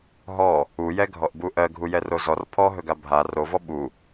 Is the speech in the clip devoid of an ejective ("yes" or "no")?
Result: yes